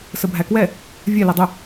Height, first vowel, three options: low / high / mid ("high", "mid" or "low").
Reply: mid